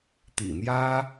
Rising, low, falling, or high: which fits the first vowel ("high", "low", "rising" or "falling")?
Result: low